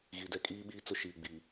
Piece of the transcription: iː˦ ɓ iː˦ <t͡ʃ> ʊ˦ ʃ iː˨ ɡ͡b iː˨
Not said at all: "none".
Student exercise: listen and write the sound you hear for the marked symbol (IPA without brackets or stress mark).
t͡s